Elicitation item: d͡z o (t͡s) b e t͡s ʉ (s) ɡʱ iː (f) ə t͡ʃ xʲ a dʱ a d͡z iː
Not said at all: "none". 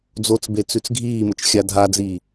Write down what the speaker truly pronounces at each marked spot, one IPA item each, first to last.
t͡s, t͡s, m

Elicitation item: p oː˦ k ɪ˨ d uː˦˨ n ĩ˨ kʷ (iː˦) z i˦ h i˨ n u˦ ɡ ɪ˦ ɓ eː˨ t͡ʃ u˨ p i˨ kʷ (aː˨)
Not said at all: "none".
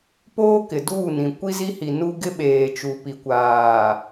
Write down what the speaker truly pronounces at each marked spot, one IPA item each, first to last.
i˦, aː˨

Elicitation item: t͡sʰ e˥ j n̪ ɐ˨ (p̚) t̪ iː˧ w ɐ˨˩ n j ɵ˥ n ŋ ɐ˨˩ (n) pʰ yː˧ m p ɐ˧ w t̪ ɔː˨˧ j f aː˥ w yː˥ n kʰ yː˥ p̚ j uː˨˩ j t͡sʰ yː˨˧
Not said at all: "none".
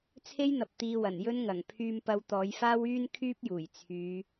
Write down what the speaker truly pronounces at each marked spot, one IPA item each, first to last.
p̚, ŋ

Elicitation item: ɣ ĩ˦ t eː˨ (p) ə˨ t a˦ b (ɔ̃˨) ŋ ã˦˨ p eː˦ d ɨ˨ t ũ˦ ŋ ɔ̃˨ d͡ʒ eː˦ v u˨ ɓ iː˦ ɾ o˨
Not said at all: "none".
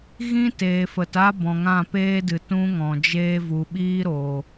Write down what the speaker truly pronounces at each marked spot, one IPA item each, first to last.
f, ɔ̃˨

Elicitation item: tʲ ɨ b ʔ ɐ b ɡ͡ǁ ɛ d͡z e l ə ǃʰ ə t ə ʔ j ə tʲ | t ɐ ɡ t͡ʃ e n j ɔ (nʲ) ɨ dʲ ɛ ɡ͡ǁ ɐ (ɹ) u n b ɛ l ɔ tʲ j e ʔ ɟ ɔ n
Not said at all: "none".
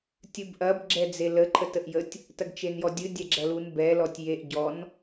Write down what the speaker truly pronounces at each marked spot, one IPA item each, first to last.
dʲ, l

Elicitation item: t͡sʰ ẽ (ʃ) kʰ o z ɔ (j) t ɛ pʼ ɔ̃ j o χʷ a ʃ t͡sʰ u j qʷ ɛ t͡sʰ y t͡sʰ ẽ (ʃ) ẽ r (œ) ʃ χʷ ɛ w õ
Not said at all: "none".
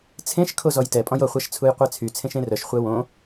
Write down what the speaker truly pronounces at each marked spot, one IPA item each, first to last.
ʃ, j, ʃ, œ

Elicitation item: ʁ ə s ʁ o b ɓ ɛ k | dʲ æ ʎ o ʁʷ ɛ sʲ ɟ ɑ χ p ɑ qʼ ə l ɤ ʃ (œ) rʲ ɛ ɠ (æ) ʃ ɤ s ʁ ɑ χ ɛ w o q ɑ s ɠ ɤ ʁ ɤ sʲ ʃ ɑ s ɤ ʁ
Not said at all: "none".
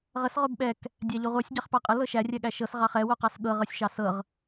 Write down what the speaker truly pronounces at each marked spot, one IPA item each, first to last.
æ, æ

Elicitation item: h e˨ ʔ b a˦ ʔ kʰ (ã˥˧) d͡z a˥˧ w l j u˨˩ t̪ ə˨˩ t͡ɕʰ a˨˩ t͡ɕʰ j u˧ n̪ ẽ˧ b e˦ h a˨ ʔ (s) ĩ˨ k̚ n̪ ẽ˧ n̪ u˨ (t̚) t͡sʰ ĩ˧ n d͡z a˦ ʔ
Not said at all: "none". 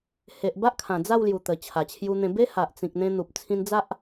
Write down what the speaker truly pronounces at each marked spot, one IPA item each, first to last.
ã˨˩, t͡s, p̚

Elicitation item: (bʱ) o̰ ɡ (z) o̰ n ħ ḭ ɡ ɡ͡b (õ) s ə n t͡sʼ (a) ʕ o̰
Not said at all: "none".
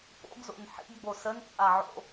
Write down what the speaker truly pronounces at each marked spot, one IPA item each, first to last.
p, z, o, a

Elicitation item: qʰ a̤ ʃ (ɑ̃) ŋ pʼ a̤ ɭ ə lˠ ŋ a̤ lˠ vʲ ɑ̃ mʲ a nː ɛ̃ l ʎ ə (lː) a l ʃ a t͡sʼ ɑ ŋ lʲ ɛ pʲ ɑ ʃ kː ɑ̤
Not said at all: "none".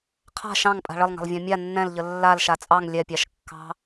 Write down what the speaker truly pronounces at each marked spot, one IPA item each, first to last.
ɑ̃, lː

